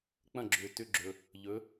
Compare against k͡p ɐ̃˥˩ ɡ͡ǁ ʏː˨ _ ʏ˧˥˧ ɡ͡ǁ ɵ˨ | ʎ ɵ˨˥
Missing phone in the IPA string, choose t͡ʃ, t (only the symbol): t